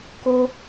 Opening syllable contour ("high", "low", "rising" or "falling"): high